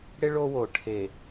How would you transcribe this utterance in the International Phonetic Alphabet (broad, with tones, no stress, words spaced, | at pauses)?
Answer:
ɽɪ˦ɭ o˦wo˨ ʈʰe˨